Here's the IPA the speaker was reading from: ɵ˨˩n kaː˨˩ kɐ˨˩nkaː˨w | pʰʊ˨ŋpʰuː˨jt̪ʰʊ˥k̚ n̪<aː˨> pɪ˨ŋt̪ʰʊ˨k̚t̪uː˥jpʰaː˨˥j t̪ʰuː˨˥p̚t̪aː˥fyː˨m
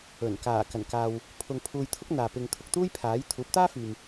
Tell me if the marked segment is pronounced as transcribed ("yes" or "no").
yes